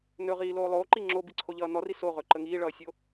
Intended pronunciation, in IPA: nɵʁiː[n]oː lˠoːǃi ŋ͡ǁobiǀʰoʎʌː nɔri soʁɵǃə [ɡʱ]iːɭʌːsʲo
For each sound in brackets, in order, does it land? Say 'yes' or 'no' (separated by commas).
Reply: no, no